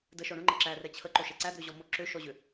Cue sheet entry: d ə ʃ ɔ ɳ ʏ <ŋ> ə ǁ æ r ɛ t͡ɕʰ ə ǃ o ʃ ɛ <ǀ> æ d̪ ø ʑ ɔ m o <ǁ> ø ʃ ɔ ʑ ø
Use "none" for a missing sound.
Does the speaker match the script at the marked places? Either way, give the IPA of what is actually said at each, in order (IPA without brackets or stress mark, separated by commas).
ŋ͡ǃ, ǀ, ǁ